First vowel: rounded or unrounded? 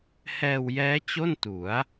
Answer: unrounded